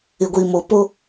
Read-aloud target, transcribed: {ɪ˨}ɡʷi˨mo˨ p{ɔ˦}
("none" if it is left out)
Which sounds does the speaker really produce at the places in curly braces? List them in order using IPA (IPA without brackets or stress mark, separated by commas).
ɪ˨, o˦